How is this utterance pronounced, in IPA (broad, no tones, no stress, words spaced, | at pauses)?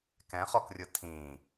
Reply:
kɛ̃χɔkrʲɯ tʰĩ